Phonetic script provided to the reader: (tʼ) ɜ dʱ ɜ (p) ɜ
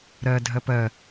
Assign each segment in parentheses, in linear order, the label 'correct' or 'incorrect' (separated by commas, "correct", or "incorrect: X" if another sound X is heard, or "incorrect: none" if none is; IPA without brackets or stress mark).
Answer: incorrect: ɾ, correct